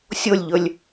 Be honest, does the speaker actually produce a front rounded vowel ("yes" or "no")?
no